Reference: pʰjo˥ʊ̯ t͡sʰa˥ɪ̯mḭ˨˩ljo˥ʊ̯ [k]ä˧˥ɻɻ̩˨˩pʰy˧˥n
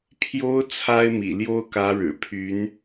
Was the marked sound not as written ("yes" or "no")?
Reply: no